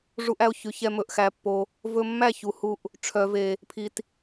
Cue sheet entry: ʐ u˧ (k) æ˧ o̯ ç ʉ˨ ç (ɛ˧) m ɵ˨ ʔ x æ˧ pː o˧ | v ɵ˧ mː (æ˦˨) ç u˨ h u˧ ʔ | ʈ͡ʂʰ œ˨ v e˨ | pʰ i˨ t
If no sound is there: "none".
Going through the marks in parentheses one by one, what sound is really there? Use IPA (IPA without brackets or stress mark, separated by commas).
ʔ, ɛ˧, æ˦˨